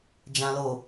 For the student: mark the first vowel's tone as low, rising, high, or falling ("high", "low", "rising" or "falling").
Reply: low